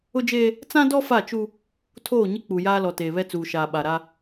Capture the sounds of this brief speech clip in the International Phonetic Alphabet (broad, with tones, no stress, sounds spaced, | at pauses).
ʊ˦ d͡ʒ eː˦ | t͡s ã˦ d ɔ˦ f a˦˨ t͡ʃ u˦ | tʰ oː˦˨ ɲ ɪ˦ k͡p u˨ j aː˦ l ɔ˨ t eː˨ β ɛ˦ t͡s uː˨ ʃ aː˨ ɓ a˨ ɾ a˦